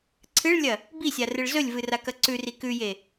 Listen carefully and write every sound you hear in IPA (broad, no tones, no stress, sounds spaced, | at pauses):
ǀʰ ɨ ɭ lʲ ɐ | b i sʲ a r ɨ ɭ z ɵ lʲ v ɨ r a k ɐ ǀ ʉ r i k ʉ j e